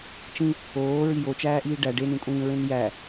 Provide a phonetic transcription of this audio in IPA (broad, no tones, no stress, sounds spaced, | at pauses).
t͡ʃ ĩ | oː ɹ i j o t͡ʃ æː ʔ iː ɖ æ ɖ e n ĩ kʷʼ ĩː ɹ ẽ n j æ